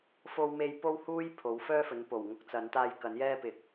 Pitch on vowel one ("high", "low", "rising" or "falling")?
high